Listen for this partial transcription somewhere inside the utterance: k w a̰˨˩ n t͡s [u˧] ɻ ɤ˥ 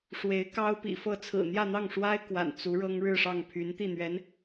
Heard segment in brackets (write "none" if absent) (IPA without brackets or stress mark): u˧˥